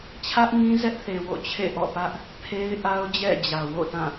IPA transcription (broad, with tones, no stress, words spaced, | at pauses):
t͡ɕʰä˦ʔŋĩ˦zɛ˦ʔθe˨ wo̰˦˨t͡ɕʰḛ˦˨ʔɔ̰˦˨pä˦ʔ | pʰe˦ɪ̯ʔa˦ʊ̯ d͡ʑɛ̰˦˨d͡ʑä˨wo̰˦˨tã˦˨